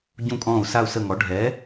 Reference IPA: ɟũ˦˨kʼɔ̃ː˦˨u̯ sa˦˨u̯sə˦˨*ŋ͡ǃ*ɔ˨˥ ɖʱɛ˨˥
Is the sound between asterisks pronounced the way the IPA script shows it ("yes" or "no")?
no